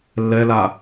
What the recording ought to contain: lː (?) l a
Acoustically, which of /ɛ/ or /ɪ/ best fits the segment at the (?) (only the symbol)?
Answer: ɛ